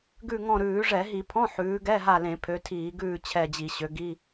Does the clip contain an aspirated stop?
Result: yes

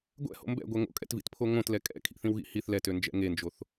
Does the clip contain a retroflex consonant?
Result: no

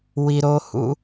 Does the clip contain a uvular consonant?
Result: no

